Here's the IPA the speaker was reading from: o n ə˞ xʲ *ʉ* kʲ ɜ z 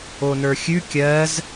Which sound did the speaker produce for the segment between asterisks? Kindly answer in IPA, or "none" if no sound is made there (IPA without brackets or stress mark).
ʉ